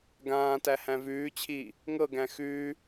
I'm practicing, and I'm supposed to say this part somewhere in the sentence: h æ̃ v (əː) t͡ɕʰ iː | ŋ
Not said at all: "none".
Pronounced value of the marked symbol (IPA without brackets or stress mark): ʉː